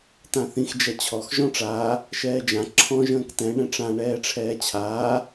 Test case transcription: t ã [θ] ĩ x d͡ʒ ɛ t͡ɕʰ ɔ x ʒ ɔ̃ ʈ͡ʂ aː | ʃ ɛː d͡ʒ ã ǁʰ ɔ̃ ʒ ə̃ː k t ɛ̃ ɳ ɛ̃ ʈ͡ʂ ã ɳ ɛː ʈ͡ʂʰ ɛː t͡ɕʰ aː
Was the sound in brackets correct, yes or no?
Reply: yes